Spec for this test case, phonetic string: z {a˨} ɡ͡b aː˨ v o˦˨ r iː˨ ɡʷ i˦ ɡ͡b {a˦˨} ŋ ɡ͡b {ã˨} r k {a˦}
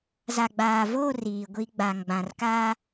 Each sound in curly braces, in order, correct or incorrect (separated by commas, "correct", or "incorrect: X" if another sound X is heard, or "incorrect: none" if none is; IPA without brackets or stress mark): correct, incorrect: a˨, correct, incorrect: aː˦